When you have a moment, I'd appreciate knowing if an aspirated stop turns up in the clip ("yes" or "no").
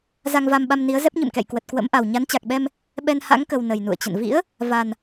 no